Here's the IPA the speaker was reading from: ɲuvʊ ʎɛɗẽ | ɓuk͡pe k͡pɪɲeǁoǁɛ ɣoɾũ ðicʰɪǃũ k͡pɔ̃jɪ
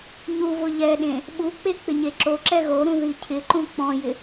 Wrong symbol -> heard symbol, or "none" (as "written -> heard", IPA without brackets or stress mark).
none